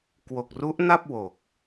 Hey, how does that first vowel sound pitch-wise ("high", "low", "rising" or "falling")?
low